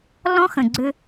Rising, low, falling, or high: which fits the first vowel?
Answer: high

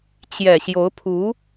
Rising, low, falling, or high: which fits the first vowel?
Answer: low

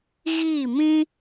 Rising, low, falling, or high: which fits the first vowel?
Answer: falling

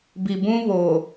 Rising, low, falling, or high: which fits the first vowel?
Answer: low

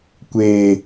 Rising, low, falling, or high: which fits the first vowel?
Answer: low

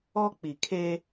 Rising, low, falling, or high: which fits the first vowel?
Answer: high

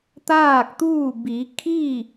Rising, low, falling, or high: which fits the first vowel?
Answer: falling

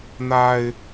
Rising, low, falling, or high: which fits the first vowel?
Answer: high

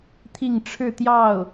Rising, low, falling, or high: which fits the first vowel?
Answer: falling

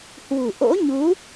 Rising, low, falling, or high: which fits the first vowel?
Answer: low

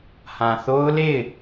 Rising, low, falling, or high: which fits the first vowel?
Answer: low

